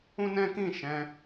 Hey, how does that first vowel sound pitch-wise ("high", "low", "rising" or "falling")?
high